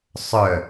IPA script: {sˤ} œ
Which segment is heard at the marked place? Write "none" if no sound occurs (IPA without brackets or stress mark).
sˤ